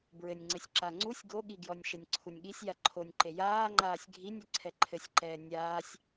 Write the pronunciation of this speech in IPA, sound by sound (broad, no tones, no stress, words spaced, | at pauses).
bɹɘnʲŋ͡ǀɘsʲ ǁaŋ͡ǀusʲ ɡoɠiɡjɔnʲ ʃɘnʲǀʰunʲɠisʲ jaǃʰonʲǃe jaːŋ͡ǃaːsʲ ɡʱinʲ ɘǀʰɛǃʰɘsʲǃɛː nʲaːsʲ